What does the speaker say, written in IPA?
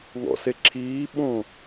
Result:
ŋ ɔ̰ s e ǁʰ iː ɓ õ

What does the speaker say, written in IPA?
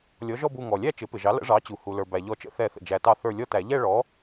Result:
lʲ ɔ˩˥ ʒ ɔ˥˧ b u˧˩ ŋ ɔ˩ lʲ æ˥˧ t͡ʃ ɪ˩˥ p ɪ˩ ʒ ɑ˩˥ l ə̰˩˥ ʐ ɑ˩˥ t͡ɕ u˩ h u˩ l ə˞˩ b æ˩ ʎ ɔ˨˩˦ t͡ʃ ə̰˨˩˦ θ ɛ˨˩˦ θ ə̰˩ d͡ʒ æ˩ t ɑ˧˩ θ ə˞˧˩ lʲ ɔ˥˧ t æ˨˩˦ ʎ ɛ˥˧ ɭ ɔ˩˥

